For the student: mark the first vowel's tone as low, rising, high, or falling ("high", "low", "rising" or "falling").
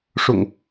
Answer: low